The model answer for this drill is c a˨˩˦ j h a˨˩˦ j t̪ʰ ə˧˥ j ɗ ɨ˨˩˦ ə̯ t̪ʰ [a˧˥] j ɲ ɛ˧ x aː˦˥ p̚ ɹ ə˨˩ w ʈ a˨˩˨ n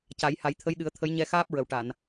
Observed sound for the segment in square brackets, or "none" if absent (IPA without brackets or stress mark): ə˧˥